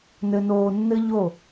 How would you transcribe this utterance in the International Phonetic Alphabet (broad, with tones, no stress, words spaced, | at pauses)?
nɘ˧noː˧nːɘ˥ʎo˥˩